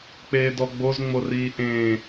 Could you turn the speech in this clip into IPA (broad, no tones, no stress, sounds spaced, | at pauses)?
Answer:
k͡p eː d ɔ ɡ͡b o z ŋ͡m o r iː ʔ ẽː